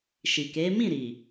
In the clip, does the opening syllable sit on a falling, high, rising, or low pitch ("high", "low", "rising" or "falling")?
low